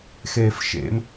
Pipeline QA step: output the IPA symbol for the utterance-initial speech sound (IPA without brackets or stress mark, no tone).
x